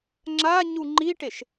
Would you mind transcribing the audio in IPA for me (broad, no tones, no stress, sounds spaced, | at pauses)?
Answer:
ŋ͡ǁ a ɲ u ŋ͡ǃ i ʈ e ʃ